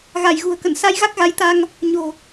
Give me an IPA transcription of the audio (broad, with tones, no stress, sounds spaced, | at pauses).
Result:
ɣ a˧˩ j ɣ ṳ˨˩ ə̯ k ə̰˧˨ n s a˧ j ɣ a˦˥ k̚ ɣ a˨˦ j t̪ a˧ ŋ | ɲ o̤˨˩